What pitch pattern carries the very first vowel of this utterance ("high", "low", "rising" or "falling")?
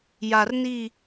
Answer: low